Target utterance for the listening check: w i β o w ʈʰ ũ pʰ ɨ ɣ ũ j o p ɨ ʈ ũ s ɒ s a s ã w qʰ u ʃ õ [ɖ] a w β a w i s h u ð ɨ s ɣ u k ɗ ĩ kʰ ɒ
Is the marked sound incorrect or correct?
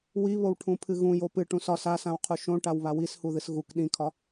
incorrect